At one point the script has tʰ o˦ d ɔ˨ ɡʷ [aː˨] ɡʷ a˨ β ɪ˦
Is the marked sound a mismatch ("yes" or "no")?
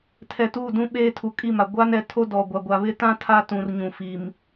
yes